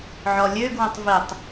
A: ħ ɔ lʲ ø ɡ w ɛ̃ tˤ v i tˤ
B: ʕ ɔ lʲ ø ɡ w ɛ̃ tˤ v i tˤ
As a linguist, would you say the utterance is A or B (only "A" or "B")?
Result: B